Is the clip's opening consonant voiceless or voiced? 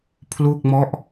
voiceless